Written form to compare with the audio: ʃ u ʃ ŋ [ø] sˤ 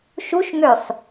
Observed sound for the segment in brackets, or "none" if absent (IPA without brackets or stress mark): ø